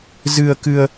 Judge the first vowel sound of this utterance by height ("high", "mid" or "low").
high